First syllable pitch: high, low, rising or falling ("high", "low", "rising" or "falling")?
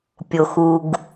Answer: low